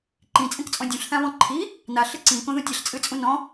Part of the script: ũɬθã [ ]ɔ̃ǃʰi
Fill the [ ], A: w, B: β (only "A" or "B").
B